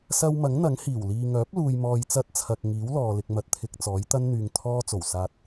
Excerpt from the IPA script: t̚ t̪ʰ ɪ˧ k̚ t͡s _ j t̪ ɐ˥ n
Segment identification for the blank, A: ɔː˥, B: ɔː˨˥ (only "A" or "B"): B